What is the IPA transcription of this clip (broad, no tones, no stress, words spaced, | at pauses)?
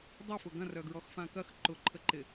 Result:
dˤøfʊ ɡɐ̃rœɡɹɔx fãkɐx ǃʊǃʰə ǃɪ